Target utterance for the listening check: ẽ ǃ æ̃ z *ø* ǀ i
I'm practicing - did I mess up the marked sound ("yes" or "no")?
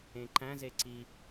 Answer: yes